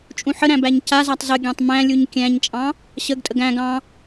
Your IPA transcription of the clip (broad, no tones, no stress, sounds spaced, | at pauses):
t͡ʃʼ ũ ħ ə ɾ æ̃ b æ ɲ c a z a tˤ z ə ɡʲ æ̃ tˤ m æ̃ lʲ u ɲ kʲ æ̃ ɲ t͡ʃʼ ɑ̃ | ɕ ə ɡ tʼ ə ɡ æ̃ ɡ ɑ̃